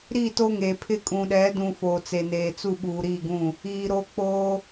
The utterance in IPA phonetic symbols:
ɾ i˦˨ t o˦ ŋ e˨ pʰ ɪ˦ kʼ ũ˨ ɗ ɛ˨˦ d ũ˨ f oː˨ t͡s e˨ n eː˨ t͡s u˦˨ ɓ uː˨ ɾ iː˦˨ ɡ ũ˦˨ | iː˨ ɾ o˦ k͡p oː˦

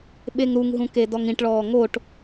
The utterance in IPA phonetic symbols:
ɓ e ŋ ɾ u ŋ ɦ ũ k e d ɔ ŋ ĩ ʈ ɭ ɔː ŋ o ʈ

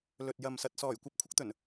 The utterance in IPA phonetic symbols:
l ɵ˨ t̚ j ɐ˨ m s ɐ˨ t̚ s ɔː˨˩ j kʷ ɐ˨ p̚ kʷʰ ɪ˨˥ k̚ t̪ ɵ˨˩ n

